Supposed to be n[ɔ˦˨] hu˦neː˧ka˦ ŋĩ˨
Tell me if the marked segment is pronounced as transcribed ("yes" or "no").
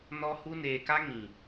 no